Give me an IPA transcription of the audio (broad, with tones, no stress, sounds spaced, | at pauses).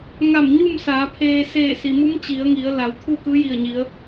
ŋ a˧˩ m ɲ u˥˨ m s aː˩˧ pʰ eː˧ s eː˧˩ s i˩ m u˧˥ m t͡ɕ i˩˧ ə̯ ŋ i˩˧ ə̯ l a˩˧ w t̪ʰ uː˥˨ k ɯː˧˥ j i˧˩ ə̯ ɲ i˩˧ ə̯